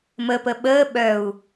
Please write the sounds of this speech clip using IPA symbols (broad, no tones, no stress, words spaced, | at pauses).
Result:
məpə ɓəː ɓœu̯